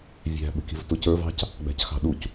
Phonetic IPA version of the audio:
vʲæ̤ ɓə̤kʲə̤vtʊcə˞v ɑ̤c | ɡ͡bæ̤cxɑ̤ɗuc

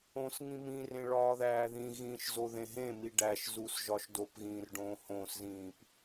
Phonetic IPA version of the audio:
õsŋĩ mĩrẽ ɭɒːðæːðĩɣĩːʃ zoðẽɦẽmi ɖæʃzus ʒɒʃdopɣĩːr ɖõːhõszĩːp

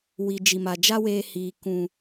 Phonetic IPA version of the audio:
wi˨d͡ʒi˨ma˨d͡ʒa˦ weː˧hiː˨ kũ˨

